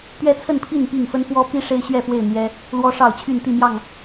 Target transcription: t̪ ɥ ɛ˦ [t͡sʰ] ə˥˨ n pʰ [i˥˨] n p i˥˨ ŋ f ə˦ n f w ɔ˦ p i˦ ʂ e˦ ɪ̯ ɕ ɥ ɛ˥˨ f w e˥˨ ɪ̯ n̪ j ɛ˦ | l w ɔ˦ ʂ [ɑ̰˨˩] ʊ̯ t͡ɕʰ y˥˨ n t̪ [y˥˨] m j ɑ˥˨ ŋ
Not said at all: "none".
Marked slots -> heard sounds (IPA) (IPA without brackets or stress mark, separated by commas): t͡sʰ, i˥˨, ɑ˥˨, i˥˨